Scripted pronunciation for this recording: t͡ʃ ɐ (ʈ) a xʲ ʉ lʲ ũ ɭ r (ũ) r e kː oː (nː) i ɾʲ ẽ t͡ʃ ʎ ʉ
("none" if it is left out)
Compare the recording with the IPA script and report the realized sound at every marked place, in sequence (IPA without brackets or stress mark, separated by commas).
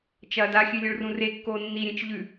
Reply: d, ũ, nː